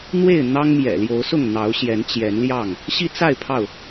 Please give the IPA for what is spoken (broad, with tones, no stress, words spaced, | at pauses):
n̪we˥˨ɪ̯ n̪ɑ˦ŋmjɛ̰˨˩ ljo˨˦ʊ̯sʊ˥˨ŋ n̪ɑ˨˦ʊ̯ɕjɛ˨˦nt͡ɕjɛ˨˦nljɑ˥˨ŋ | ɕi˦t͡sa˥˨ɪ̯ pʰɑ˥˨ʊ̯